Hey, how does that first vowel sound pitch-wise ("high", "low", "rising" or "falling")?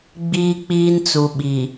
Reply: high